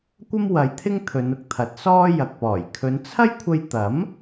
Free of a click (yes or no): yes